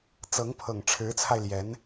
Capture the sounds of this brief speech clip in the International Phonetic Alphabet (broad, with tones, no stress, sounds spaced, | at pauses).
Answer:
t͡s ɤ˧˥ ŋ pʰ ɤ˨˩ ŋ ʈ͡ʂʰ ɻ̩˧˥ t͡sʰ a˧ ɪ̯ l j ɛ˧˥ n